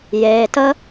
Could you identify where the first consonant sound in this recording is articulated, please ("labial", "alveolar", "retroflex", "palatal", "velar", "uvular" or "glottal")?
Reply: palatal